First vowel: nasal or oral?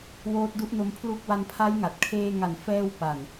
oral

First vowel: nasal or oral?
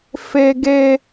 oral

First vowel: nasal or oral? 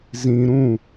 nasal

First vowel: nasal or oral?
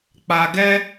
oral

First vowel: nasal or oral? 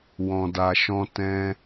nasal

